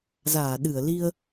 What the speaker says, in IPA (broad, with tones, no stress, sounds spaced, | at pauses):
z aː˧˩ ɗ ɨ˧˩ ə̯ l i˧ ə̯